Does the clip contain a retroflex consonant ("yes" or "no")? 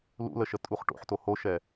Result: yes